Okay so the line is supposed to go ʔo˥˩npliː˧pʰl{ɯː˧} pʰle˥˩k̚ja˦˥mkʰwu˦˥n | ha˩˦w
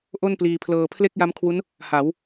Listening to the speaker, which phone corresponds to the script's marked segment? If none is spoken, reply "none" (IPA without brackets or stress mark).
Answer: ɤː˧